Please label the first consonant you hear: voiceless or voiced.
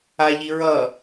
voiced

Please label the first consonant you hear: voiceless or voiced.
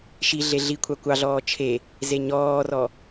voiceless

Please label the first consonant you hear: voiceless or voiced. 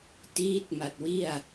voiceless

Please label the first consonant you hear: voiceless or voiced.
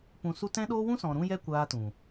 voiceless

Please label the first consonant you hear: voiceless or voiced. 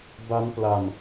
voiced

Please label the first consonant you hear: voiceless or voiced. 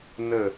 voiced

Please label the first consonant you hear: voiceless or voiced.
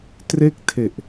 voiceless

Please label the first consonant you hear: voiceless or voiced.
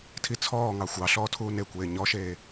voiceless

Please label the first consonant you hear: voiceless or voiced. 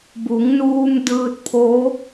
voiced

